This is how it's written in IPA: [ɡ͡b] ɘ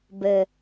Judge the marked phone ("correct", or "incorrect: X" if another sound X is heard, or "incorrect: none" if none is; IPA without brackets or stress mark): incorrect: b